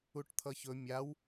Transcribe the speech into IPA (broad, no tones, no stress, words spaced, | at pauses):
uʈt̪ʰʌçɵ mʲaw